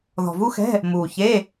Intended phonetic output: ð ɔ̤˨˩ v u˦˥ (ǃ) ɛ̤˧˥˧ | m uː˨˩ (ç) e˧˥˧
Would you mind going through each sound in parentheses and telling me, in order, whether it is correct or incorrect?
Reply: incorrect: x, correct

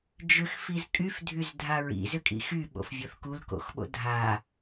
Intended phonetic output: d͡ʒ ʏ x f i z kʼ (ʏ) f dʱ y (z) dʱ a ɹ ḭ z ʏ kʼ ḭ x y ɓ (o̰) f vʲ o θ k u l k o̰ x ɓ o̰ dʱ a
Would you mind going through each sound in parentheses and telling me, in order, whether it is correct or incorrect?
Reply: incorrect: y, correct, correct

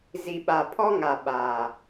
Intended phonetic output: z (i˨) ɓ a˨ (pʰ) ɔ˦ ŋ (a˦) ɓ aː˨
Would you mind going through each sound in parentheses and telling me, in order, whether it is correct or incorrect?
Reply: correct, correct, incorrect: a˨

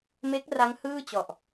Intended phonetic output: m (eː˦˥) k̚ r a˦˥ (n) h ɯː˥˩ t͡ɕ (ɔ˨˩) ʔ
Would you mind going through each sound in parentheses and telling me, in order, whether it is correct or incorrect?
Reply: incorrect: e˦˥, incorrect: ŋ, correct

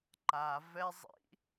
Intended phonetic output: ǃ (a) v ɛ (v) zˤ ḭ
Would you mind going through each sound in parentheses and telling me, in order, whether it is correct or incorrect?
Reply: correct, incorrect: none

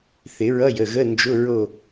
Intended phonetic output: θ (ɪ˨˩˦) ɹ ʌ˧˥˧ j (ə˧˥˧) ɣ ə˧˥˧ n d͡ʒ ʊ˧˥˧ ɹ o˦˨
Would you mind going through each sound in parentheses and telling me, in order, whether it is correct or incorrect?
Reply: correct, incorrect: ə˩˧˩

